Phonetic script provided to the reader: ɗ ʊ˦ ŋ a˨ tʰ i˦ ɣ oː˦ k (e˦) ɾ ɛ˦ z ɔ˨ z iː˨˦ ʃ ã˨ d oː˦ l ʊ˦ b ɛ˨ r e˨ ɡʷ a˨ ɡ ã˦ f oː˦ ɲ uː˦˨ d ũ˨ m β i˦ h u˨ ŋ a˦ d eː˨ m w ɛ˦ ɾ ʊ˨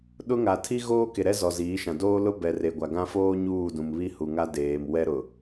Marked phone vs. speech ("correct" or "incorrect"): incorrect